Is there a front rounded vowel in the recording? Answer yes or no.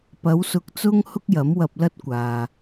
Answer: no